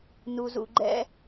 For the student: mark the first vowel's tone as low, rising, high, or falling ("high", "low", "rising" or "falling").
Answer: low